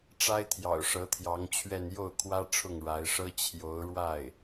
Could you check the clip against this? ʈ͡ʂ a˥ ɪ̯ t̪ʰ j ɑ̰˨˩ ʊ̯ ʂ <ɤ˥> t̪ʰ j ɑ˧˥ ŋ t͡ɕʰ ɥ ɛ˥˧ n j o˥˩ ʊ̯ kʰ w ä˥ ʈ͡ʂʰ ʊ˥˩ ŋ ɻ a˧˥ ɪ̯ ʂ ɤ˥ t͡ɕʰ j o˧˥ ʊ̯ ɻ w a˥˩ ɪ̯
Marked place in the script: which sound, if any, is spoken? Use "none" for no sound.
ɤ˧˥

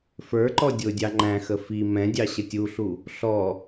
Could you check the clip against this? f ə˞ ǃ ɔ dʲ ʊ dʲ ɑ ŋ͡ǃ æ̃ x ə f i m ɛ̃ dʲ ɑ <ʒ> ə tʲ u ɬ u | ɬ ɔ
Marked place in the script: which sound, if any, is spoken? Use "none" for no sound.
ɕ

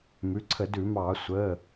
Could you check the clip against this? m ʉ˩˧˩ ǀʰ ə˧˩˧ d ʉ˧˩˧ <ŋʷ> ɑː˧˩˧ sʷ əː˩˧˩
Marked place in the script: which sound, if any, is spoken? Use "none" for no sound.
m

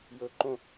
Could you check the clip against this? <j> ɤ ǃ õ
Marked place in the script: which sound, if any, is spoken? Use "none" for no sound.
j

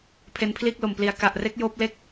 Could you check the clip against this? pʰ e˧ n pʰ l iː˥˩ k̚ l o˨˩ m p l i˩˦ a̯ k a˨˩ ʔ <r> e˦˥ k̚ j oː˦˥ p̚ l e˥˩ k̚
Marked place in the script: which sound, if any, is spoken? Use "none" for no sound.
r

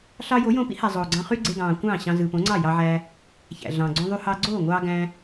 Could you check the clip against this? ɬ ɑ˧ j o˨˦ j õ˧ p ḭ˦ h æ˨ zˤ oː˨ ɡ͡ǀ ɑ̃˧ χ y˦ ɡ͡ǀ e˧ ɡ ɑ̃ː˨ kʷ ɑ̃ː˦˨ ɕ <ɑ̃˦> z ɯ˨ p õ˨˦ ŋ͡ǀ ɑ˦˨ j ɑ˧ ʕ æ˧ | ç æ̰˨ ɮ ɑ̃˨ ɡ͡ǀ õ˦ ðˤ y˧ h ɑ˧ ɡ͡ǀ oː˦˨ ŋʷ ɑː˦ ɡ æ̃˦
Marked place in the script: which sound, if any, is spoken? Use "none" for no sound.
ɑ̃˧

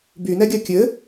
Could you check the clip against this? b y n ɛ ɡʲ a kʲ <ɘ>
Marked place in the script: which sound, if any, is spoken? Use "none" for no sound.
ɘ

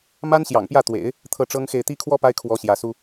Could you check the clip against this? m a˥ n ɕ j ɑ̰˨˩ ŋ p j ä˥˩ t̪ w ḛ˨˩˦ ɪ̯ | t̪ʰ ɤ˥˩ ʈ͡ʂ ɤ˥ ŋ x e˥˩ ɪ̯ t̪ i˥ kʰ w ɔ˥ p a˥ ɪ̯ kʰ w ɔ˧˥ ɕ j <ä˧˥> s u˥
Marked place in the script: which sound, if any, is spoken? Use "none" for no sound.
ä˧˥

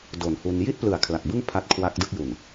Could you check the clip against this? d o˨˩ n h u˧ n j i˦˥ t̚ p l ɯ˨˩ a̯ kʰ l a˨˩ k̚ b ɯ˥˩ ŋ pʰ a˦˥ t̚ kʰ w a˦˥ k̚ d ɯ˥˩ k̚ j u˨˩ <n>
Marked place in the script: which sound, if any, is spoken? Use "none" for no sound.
n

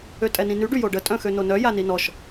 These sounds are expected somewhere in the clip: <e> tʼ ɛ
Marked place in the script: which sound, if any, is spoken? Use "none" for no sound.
ø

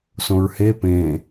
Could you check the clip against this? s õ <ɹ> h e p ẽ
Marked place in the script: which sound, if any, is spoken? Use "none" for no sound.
ɹ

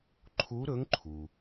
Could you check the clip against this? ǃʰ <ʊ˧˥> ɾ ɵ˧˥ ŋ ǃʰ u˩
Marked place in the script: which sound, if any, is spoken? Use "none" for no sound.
u˧˥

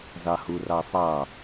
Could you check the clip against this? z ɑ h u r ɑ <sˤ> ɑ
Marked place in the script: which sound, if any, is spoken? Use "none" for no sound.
sˤ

